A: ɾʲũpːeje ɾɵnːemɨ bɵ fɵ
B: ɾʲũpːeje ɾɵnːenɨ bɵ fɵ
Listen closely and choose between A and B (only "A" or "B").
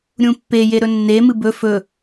A